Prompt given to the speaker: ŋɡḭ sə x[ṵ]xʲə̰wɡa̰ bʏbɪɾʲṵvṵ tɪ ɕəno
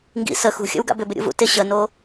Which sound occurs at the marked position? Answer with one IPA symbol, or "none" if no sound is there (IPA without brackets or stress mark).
ṳ